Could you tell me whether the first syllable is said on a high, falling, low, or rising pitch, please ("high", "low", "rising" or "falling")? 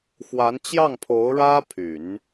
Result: rising